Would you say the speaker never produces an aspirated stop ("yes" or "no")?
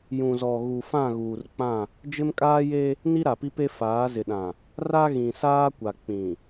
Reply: yes